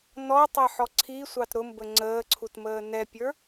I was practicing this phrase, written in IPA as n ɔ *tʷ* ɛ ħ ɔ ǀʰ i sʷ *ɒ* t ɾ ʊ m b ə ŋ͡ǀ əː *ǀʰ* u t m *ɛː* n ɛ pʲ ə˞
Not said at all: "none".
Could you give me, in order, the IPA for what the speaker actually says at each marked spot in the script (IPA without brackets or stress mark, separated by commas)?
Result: tˤ, ɑ, ǀʰ, əː